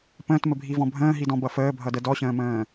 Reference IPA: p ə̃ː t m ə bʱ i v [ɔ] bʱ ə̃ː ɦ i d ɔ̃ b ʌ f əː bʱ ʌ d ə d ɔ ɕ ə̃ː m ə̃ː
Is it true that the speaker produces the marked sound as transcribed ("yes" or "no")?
no